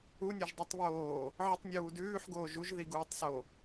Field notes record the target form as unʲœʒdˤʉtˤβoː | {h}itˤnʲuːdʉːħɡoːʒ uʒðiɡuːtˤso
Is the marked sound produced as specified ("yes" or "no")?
no